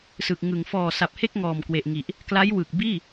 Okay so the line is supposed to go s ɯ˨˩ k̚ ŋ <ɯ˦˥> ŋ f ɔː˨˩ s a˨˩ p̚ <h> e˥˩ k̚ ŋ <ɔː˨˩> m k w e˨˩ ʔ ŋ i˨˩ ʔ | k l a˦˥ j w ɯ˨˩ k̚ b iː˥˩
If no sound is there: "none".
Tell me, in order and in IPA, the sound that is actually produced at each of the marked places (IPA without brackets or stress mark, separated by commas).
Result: ɯ˩˦, h, ɔː˨˩